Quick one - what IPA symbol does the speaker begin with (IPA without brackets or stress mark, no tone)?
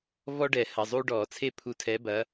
v